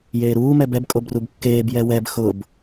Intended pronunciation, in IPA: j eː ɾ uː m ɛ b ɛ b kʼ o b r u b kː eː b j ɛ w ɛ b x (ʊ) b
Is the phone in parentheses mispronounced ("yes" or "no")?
no